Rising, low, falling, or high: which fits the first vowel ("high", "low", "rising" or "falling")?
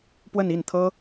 falling